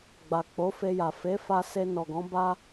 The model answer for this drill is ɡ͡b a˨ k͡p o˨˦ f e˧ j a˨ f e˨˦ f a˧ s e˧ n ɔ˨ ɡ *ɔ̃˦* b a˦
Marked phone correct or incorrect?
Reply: incorrect